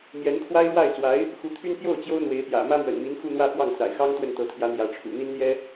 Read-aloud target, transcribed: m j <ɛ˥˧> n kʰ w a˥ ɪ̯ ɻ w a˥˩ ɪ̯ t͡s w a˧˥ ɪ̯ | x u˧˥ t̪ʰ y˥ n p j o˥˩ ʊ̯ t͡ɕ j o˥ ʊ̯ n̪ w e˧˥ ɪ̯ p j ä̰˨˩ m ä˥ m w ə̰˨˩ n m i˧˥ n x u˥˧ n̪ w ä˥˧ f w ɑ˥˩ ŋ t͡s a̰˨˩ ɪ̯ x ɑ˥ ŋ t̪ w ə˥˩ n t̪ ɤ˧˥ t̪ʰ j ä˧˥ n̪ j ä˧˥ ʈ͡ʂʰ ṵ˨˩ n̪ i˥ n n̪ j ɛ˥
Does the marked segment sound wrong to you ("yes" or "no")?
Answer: yes